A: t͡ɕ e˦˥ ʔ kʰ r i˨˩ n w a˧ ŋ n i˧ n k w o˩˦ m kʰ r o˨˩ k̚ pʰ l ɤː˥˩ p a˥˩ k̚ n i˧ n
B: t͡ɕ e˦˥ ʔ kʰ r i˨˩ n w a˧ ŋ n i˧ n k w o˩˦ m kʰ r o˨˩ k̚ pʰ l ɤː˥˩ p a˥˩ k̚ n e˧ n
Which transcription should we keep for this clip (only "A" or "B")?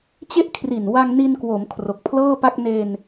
B